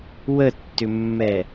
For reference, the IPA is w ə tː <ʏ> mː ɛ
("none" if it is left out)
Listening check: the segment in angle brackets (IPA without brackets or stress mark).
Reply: ʏ